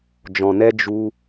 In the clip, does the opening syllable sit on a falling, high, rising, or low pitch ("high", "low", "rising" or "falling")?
low